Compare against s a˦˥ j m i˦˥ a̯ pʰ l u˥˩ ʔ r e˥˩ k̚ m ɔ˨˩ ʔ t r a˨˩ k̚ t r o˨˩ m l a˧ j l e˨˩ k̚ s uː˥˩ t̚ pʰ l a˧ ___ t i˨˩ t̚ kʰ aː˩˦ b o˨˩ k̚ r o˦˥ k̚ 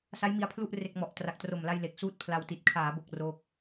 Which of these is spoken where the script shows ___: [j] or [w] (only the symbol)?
w